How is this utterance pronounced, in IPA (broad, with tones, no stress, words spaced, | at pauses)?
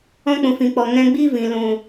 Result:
ɔ̃˦k͡pũ˨fĩ˨k͡pɔ˨ ŋɛ̃˧ɡ͡bi˦vĩ˨ lũ˨